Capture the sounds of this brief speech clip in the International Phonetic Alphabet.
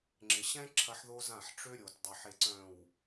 ŋ͡ǁɪ˨ɕɛ̃˦ ǁʰɐ˦ħðo˦zã˦˨ħ ʈ͡ʂø˦ɾʲo˨t dˤø˨ħe˨ ǀœ̃˨w

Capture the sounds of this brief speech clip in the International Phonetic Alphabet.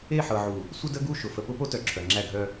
e˦˨ħɤ˨ʕu˨ | sʷə˦də˦ ɡu˦˨ʃʊ˨ fə˨pʊ˦po˦tœ˨ ǁʰœ˨ŋ͡ǁæ˦˨ɡʱœ˦

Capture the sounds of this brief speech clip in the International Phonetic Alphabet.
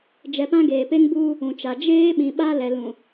d͡ʒɛ˨pã˦ɡeː˨ pe˦ŋbuː˦ | ũ˨t͡ʃa˨ d͡ʒeː˦ ɓĩ˨ɓa˦lɛ˨ lũ˨

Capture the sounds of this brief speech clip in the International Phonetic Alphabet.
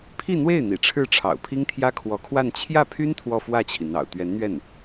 pʰi˥˧n̪we˥˩ɪ̯ n̪ḭ˨˩ʈ͡ʂʰɻ̩˥˩ʈ͡ʂʰɑ̰˨˩ʊ̯ pʰi˥ŋt̪ʰjä˥kʰwɔ˧˥kʰwa˥˧n t͡ɕʰjä˥˩pʰy˥n t̪ʰwɔ˥˧fwä˥˩t͡ɕʰi˩ n̪ɑ̰˨˩ʊ̯t̪ɥɛ˧˥nn̪ɥɛ˥˩n

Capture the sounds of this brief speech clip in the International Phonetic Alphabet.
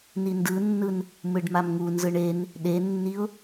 nindɯnːɯn | mɯɖmamŋunzɯɳ en | ɗenːiʊ̯

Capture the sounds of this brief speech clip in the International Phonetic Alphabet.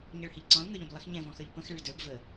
ɲʌɭhɪʎǀɔ̃l ŋə˞ʎə̃blˠɪx ɲɛ̃vɔ̃xə˞ʎ pə̃x ɭɪɭdə˞b və

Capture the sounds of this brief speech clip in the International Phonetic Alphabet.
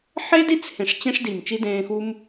ħe˦di˦t͡s hẽ˨ʂ t͡ɕẽ˦ʂdi˨m t͡ʃi˦dẽː˧xu˦m

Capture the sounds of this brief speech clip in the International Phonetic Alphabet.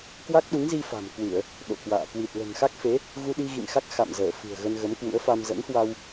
kwa˦˥k̚ɗu˨˦ŋzi˧ fa̤˨˩m kwɨ˧˩˨ə̯ | ɗo̰˧˨kwa̰ː˧˨ kwi˨˩t̚lə̤˨˩nxa˦˥k̚fe˨˦ | ɣu˧ɗi˧ɣḭ˧˨ŋxa˦˥k̚ xa̰˧˨mzəː˧˩ fɨ̤˨˩ə̯ ɣə˧nɣə˨˦mkwṵ˧˥ə̯fa˧m zə̰˧˥nhwa˧w

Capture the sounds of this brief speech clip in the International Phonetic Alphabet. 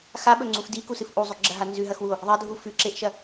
xaɓɵŋ͡ǀuf dikusɨf ʔuzˤʉɡ͡ǁɐɦa nzʉɦɐxwuo̯ | ðˤɐdʱu fʉǁeʔʃɐ

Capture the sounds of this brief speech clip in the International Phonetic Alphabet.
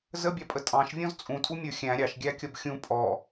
zəbʲɑpʼə tʼɑ̃ʃvʲɔ̃z t͡sʼũtʼumʲə˞ xʲæ̃ ɾʲɑʃɡʲækʲʌb xʲũ pʼɔ

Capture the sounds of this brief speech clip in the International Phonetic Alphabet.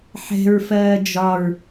ħɛ̤ɹfɜː d͡ʒɒɹ

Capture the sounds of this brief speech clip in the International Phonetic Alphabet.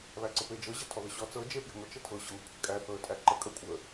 βæǀəped͡ʒɤ ʑæ̤tʰɔðəɕɔ t͡sɤ d͡ʒe pje̤ŋʷə t͡ʃətʰɤ ɕɤŋʷe̤kʷʰæ̤kʼæ θɤə̯tʼæǃə kʼə kʷʼə

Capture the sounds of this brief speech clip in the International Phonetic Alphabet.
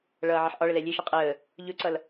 ɭʌːʕʌħʔɒɭə lɛlʲeʃʌ qʼəː | ʎɵǀʌl

